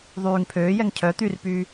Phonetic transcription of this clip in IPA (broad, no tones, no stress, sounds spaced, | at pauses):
ðˤ yː ŋ pʰ øː j ɛ ŋ cʰ œ t̪ y r p yː